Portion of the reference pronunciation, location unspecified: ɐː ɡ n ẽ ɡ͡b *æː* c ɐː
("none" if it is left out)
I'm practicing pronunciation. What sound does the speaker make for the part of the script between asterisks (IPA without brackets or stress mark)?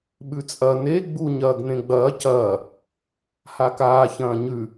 ɐː